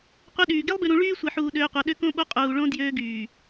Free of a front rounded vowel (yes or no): no